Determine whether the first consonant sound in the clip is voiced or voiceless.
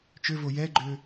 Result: voiceless